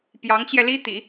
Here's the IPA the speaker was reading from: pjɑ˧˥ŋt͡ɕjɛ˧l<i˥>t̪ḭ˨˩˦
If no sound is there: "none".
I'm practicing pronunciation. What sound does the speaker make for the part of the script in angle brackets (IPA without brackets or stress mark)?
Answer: i˥